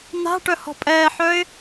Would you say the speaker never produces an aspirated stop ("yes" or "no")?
yes